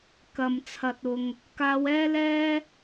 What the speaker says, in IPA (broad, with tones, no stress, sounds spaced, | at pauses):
k ɐ˨ m t͡sʰ ɐ˨ t̚ ʊ˨ ŋ | k aː˧ w ɛː˥ l ɛː˥